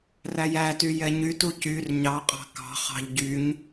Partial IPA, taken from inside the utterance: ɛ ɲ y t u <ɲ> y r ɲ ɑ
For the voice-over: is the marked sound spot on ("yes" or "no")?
no